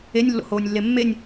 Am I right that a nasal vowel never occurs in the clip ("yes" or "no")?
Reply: yes